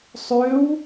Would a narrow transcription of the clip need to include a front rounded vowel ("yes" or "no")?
yes